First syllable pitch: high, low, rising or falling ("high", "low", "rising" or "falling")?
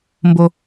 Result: low